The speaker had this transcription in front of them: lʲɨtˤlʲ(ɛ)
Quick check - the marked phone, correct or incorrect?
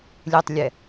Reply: correct